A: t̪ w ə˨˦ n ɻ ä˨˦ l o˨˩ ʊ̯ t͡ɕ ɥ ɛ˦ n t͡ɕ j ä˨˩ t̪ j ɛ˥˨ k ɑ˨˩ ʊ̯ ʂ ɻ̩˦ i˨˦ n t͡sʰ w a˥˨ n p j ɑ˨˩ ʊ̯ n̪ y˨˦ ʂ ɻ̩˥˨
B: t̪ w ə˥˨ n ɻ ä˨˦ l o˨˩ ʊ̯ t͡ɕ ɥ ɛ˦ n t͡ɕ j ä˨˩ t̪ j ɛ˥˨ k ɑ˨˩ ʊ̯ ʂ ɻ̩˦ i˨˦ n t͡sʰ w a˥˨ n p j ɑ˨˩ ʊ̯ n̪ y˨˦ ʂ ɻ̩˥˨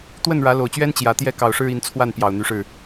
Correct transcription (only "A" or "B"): B